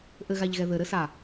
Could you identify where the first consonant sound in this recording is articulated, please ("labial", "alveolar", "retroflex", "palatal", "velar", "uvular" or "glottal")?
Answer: glottal